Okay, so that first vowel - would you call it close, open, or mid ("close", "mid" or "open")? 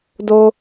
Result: mid